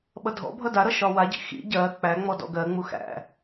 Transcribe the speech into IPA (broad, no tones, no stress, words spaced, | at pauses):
ɓʌdʱɔ̰bʱʌ daɾʌ ʃɒwaɟḭ xḭ ɟɜ k͡pæŋ͡mɔ dɔ̰ɡɜŋ͡mu xæ̰